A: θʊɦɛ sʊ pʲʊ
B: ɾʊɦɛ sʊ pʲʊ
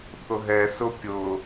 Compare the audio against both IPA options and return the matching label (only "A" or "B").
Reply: A